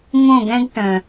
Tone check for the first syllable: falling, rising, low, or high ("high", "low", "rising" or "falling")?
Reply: falling